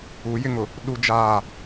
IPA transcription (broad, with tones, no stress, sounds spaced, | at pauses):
u˨˦ j ɪ˦ ŋ ʊ˨ | ɗ u˦ d͡ʒ aː˦˨